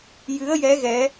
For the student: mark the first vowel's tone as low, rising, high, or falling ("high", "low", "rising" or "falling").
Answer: rising